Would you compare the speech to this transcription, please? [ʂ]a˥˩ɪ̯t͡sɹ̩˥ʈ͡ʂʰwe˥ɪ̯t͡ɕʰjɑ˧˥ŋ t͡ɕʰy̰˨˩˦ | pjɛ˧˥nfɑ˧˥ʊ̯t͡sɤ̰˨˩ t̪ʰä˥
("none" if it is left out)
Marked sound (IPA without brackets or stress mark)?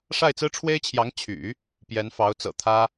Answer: ʂ